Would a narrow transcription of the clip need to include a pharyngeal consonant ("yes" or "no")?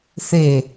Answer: no